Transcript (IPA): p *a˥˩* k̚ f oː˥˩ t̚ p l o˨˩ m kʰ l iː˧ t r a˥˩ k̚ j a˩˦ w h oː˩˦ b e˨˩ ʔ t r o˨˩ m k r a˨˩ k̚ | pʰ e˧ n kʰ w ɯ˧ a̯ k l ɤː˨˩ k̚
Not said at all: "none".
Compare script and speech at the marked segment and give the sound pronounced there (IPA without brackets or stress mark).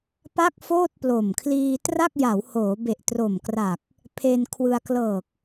a˥˩